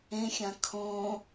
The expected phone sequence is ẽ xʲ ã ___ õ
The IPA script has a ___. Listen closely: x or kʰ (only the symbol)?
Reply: kʰ